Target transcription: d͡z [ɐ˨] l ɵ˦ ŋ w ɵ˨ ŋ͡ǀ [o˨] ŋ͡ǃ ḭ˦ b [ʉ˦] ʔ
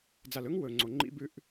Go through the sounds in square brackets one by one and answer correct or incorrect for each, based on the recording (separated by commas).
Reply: incorrect, correct, correct